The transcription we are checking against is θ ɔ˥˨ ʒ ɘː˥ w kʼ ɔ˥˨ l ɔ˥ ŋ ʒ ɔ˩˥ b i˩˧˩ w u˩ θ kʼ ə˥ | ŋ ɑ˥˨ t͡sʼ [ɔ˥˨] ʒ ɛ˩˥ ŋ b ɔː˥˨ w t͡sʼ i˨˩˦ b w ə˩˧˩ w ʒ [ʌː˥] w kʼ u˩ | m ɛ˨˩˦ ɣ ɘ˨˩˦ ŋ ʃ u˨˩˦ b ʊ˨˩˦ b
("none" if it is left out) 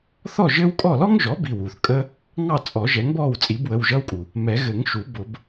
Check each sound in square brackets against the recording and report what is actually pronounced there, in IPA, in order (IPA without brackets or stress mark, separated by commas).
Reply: ɔ˨˩˦, ʌː˥